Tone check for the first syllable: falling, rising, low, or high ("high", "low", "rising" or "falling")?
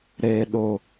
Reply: high